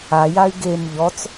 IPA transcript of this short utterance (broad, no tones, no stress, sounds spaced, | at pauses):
a j a y̯ ɡ e m ʎ ɔ t͡s